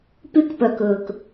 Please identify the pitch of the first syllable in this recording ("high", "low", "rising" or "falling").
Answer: high